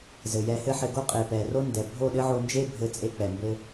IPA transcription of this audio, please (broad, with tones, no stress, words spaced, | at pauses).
zɘ˨jɛ˧hɘ˦ħɘ˧ ɡo˦qʼe˨pɛ˨ro˦ ndɛ˨ bʱo˦˨ɗɘ˦ʕo˧nd͡ʒe˦ bʱɘ˧ t͡sʼe˦k͡pɛ˨ mbɘ˦